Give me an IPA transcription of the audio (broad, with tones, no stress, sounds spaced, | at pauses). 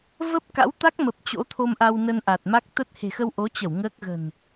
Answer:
v ə˦˥ p̚ k a̰˧˥ w t̪ a˦˥ k̚ m ə˨˩ p̚ t͡ɕ o̰˧˥ t̪ʰ o˧ m ʔ a˧ w n ə˧ n ʔ a˨˩ t̚ m a˦˥ k̚ t̪ ə˦˥ t̚ h e̤˨˩ x ə˧ w ʔ o˨˦ t͡ɕ ə˧˩ w ŋ əː˦˥ k̚ ɣ ə̤˨˩ n